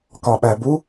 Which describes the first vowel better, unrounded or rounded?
rounded